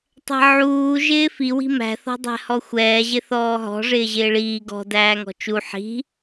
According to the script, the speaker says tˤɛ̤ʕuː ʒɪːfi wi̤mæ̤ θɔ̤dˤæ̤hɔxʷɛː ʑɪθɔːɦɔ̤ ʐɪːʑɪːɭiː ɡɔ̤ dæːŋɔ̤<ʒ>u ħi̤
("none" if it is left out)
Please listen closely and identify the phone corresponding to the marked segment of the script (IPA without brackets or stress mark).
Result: t͡ʃ